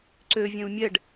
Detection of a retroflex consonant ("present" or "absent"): present